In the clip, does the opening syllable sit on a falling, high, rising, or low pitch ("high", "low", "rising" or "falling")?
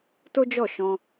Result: high